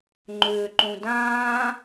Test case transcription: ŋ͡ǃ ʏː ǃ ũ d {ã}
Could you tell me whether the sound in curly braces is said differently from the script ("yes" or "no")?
yes